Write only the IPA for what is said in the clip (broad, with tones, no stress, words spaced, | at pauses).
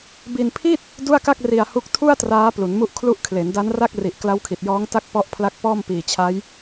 bi˧npʰi˥˩t̚ | du˥˩a̯ka˥˩k̚ri˧a̯ hu˦˥k̚ tʰu˥˩a̯ traː˦˥ plu˩˦nmu˦˥ʔkʰlu˦˥ʔ kʰle˩˦nda˦˥nra˥˩k̚ri˨˩ʔ kla˦˥wkʰi˨˩t̚jɔː˦˥ŋ ta˥˩k̚pɔ˦˥ʔpʰla˦˥k̚ pɔː˥˩mpiː˨˩t͡ɕʰa˦˥j